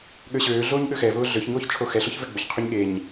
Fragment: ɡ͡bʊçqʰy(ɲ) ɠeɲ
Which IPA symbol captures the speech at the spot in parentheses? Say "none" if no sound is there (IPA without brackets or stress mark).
ɲ